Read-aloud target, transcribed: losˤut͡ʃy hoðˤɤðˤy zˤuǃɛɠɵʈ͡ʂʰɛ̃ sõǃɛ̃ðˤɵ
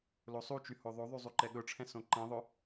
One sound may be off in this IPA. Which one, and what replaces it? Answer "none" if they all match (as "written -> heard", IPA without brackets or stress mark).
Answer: ɤ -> o